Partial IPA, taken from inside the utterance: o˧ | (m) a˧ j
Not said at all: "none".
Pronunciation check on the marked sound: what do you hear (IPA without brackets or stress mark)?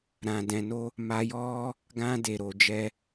m